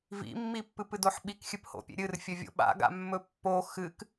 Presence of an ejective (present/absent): absent